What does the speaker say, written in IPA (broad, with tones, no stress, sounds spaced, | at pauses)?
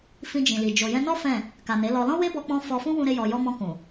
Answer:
f ĩ˧ d͡ʒ ĩ˨ l i˨ d͡ʒ o˨ j ɛ̃˧ n ɔ˦ f ɛ̃˦˨ | k a˨ n e˨˦ l ɔ˧ l ɔ̃˦ w e˦ b ɔ˧ k͡p ɔ̃˧ f ɔ˧ f ũ˦ w ũ˦ ɾ e˦ j ɔ˧ j ɔ˦ m ɔ̃˧ k ũ˨